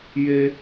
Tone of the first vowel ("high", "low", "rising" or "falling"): high